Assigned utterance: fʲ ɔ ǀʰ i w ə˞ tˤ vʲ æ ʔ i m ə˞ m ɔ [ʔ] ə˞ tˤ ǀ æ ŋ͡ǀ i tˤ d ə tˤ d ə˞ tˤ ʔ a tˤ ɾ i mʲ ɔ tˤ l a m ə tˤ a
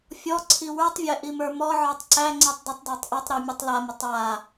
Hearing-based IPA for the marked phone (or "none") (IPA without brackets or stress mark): ʕ